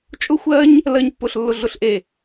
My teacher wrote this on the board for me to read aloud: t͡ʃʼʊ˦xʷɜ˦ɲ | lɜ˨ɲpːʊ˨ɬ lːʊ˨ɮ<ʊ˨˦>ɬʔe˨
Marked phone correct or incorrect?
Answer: incorrect